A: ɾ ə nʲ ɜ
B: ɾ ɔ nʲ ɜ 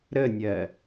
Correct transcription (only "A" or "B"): A